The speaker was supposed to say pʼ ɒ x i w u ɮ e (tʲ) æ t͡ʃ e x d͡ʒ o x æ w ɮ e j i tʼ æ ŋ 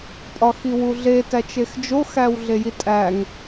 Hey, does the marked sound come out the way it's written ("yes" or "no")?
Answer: no